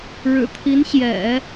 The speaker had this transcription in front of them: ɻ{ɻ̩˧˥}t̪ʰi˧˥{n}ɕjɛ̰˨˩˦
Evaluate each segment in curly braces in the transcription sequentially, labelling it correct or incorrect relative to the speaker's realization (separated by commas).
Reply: incorrect, correct